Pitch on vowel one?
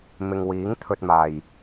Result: low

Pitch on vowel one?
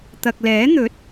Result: low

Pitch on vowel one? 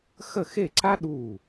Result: falling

